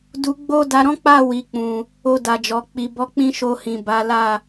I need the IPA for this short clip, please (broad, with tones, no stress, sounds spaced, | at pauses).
d u˨ ɡ͡b o˧ d a˨ ɾ ɔ̃˨˦ k͡p a˦˨ w i˨ k͡p ũ˨ | o˧ d a˨ d͡ʒ ɔ˨ k͡p i˨ b ɔ˨˦ k͡p ĩ˦ ʃ o˧ h ĩ˨ b a˨˦ l a˦˨